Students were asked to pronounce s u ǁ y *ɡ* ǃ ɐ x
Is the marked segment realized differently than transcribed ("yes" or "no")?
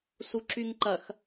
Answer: yes